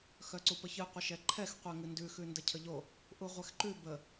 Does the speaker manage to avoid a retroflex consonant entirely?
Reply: yes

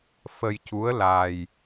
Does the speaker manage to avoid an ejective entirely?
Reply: yes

